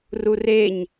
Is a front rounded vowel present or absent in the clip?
absent